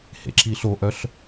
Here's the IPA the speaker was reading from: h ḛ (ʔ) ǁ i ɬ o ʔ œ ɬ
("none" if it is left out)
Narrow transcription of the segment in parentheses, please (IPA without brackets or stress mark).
none